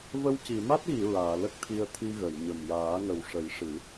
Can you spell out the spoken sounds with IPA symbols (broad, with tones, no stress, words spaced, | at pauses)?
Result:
və˧wci˨˩˨ ma˦˥t̚ɣi˨˩˨ ɹaː˨˩˨lə˦˥k̚t̪ʰi˧ə̯ t̪ʰi˧ɣə˨˩˨jɲə˨˩m jaː˨˩˦ŋə˨˩wʂə˨˩˦jʂɨ˨˩˦